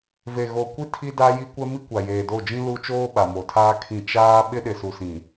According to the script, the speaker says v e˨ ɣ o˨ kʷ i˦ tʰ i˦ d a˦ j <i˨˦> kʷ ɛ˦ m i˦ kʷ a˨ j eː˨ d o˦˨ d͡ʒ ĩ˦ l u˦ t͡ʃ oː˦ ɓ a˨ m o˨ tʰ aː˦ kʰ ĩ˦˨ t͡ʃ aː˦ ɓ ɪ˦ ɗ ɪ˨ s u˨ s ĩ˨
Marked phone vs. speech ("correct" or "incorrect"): incorrect